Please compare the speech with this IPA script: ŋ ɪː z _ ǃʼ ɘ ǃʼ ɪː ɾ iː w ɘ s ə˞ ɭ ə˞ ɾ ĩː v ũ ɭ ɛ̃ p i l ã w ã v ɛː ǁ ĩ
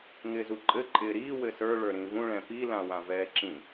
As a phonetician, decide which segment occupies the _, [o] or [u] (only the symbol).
u